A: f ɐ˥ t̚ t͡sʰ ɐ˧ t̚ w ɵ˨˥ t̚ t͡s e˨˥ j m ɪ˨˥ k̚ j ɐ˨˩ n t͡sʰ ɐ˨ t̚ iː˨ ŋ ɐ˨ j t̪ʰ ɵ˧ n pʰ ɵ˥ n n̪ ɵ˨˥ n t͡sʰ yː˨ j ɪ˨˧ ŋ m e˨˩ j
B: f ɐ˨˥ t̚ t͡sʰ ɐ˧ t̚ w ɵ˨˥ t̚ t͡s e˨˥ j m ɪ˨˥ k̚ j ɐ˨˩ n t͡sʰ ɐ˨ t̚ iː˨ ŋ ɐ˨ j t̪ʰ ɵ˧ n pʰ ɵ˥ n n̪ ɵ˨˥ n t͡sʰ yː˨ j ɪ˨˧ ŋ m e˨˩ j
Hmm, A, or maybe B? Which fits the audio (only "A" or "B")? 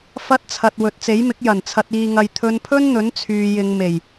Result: A